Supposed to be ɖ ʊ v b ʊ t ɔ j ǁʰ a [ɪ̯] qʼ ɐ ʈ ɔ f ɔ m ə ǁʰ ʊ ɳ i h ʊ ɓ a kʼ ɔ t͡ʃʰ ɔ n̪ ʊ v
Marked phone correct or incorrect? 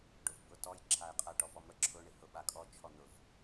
correct